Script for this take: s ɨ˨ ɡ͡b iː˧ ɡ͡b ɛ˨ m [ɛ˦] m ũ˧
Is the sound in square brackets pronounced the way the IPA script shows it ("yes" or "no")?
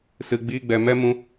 yes